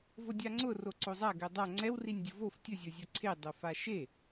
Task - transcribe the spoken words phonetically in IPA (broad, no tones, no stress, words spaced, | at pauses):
vodʲaŋ͡ǀʊ roǀozˤa ɡɛdˤa ŋ͡ǀɛw rinʲdʲʊvof tʲʊ zʲozʲoǀʰe dˤofaʃe